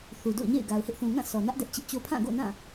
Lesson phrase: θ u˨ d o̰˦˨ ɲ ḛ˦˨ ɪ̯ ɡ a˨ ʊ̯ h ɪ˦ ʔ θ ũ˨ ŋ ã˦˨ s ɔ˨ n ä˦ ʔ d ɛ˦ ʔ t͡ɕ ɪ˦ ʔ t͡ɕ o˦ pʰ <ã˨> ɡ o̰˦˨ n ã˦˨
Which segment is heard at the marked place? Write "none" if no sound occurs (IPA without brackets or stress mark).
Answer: ã˦˨